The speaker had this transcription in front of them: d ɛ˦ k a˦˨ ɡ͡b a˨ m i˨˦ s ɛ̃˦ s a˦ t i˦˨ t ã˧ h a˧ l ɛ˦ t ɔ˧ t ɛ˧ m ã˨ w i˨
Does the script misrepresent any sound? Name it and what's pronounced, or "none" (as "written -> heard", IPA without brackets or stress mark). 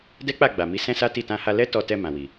k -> k͡p